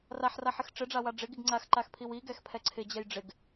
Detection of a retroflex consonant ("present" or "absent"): present